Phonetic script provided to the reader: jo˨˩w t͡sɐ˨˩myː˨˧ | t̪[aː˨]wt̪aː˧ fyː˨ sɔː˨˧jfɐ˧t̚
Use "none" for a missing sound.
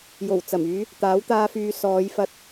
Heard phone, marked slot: aː˨˥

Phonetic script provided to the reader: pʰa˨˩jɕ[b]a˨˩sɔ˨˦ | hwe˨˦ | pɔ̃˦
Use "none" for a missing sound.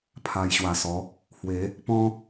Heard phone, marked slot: w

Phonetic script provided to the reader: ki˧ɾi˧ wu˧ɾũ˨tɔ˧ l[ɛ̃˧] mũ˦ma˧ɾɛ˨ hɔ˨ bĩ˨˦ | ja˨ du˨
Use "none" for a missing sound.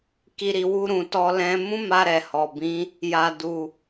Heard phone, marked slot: ɛ̃˦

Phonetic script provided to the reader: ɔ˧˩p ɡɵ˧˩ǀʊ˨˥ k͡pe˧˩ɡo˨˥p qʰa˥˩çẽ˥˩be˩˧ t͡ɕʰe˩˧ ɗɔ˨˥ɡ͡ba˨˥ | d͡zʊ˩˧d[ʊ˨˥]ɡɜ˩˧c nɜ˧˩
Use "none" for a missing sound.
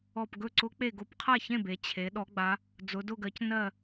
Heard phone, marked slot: ʊ˧˩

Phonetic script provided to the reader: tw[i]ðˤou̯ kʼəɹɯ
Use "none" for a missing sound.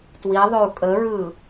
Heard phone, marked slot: i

